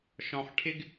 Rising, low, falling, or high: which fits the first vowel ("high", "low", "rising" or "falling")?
low